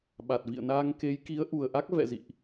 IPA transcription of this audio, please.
ɓ a˨˩ t̚ v ḭ˧˨ ə̯ n aː˧ ŋ k e˨˦ j k i˨˦ ə̯ ʔ u˨˩ ə̯ ʔ a˦˥ k̚ v ɛ̰˧˨ z ḭ˧˨ ʔ

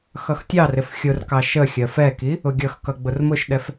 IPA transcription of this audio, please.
x ʌ x tʲ ɑ r ɪ f xʲ ʊ r k ɑ ʃ ə xʲ ɜ f ɛ k i | ʊ ɡʲ ʌ x k ʌ ɡ͡b ʊ r m ʊ ʃ ɗ ɛ f

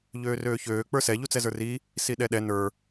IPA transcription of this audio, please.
ʎ øː r øː ç øː k͡p ə˞ s ɛ ʎ u t͡s ɛ z ə˞ r i | s i ɗ ɛ ɗ ɛ n ə˞

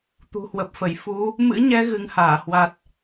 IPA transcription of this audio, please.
t̪ ṳ˨˩ h w ə˨˩ p̚ f ə˧˩ j f u˨˦ | m ɨ̰˧˥ ɲ ɛ˧ ɣ ɨ˨˦ ŋ h aː˧˩ h w a˨˩ t̚

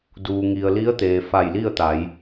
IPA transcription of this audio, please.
d uː˩ ŋ i˩ ə̯ l i˧˥ ə̯ t̪ eː˩ f a˧˩ j l i˥˨ ə̯ t̪ a˩˧ j

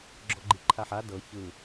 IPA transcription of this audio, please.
ɡ͡ǁ ɔ ɡ͡ǃ i ǃʰ a ħ a d ɤ ç ɯ

